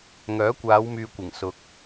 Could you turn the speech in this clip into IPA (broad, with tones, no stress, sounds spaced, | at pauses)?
ŋ œː˨˥ kʷ aː˨˧ w m yː˨ kʷ ɪ˨˩ ŋ s ʊ˨ k̚